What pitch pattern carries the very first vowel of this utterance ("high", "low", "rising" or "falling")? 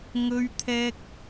high